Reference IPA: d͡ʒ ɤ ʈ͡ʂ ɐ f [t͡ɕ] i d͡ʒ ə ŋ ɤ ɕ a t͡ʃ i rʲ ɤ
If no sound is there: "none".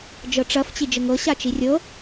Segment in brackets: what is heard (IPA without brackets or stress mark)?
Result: t͡ɕ